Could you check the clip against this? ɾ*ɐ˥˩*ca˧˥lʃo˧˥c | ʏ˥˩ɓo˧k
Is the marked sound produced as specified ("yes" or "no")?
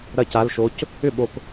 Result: yes